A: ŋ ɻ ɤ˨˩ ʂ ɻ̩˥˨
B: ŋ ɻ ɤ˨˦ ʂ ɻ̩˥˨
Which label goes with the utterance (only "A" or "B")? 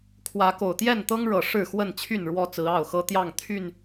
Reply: A